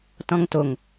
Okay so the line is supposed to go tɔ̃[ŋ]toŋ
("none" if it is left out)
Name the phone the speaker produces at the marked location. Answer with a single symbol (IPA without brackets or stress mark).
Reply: ŋ